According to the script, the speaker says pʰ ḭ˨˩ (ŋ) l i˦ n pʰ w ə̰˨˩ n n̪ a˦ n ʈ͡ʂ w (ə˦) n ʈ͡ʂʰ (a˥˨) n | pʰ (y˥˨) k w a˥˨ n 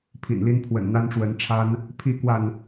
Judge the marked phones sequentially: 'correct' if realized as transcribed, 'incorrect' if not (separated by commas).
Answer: incorrect, incorrect, incorrect, incorrect